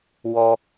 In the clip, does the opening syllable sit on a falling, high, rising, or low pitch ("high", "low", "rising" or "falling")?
high